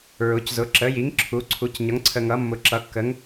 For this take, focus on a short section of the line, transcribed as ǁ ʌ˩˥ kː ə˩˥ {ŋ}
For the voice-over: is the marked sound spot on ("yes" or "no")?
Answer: yes